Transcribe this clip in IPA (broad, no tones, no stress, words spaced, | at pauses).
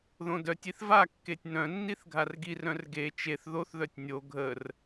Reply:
ðõdœtʲiθ vakːetʲ nœ̃nːiθ ɡʱarɡirœ̃r ɡe t͡ʃeθ ðoθðœtʲ nʲo ɡʱər